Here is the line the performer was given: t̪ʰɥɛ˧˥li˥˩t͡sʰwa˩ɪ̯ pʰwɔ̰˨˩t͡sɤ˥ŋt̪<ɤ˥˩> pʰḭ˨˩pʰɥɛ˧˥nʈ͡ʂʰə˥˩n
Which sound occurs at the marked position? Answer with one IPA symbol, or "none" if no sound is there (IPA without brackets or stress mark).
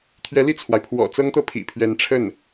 ɤ˥˩